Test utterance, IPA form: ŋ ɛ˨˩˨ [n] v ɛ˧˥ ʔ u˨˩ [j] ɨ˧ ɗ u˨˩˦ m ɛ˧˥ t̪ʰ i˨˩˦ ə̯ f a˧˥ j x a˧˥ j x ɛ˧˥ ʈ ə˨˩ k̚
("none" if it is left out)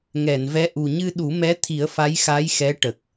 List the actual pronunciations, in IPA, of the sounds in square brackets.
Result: n, ɲ

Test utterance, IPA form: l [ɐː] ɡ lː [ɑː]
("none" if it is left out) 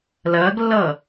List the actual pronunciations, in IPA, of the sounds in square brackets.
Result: ɐː, ʌː

